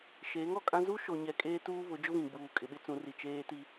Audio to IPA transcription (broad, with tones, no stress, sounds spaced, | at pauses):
ʃ eː˨˦ ŋ ɔ˨ kʼ ã˦ z u˦ ʃ o˨ ɲ ɛ˨ kʼ eː˦ t uː˦ β ʊ˨˦ d͡ʒ ʊ˦ β ĩ˨ ɡ͡b uː˨ kʼ ɪ˨ ɓ ɪ˦ t͡s ũ˨˦ r i˨ t͡ʃ eː˦ t i˦